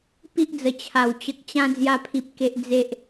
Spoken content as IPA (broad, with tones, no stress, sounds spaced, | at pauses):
p i˦ ʔ d͡z ə˨˩ t͡ɕʰ a˨˩ w t͡ɕ ə˨ k̚ t͡ɕ ã˧ d͡z j a˧ pʰ i˨ p̚ k e˨ ʔ d͡z e˨ ʔ